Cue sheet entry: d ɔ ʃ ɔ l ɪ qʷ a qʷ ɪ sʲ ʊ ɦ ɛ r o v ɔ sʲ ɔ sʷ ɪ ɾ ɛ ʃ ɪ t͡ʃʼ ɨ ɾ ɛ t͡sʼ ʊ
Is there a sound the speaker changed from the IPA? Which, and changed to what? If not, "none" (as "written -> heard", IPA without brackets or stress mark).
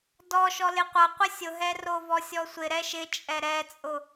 ɨ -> ɛ